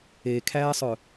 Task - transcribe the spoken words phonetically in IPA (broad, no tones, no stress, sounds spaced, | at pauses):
e kʰ æː sˤ œ